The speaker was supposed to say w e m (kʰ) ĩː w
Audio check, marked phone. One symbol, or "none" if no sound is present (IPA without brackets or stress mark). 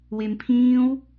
pʰ